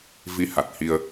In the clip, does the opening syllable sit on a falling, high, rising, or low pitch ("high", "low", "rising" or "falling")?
rising